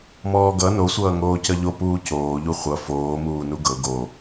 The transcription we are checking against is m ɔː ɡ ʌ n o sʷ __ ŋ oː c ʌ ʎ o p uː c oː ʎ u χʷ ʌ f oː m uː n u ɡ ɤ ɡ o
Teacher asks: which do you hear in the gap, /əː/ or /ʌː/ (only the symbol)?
ʌː